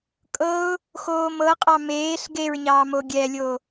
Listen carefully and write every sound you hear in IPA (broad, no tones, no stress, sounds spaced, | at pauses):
kʼ ɤ ʊ̯ | x oː m ɤ qʼ ɑ m eː ɬ ɡ e ɹ ɲ ɑː m o ɡʲ ɛ lʲ o